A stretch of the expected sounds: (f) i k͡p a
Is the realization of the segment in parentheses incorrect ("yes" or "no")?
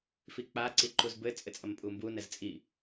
no